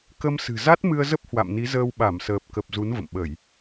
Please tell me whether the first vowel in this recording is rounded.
no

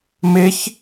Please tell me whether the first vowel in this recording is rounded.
no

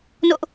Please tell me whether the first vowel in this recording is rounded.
yes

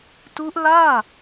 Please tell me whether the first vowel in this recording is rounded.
yes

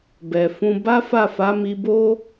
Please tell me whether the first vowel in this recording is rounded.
no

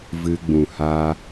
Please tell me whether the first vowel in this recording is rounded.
no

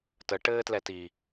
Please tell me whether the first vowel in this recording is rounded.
no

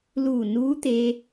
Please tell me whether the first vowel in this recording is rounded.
yes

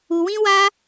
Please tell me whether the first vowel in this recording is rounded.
yes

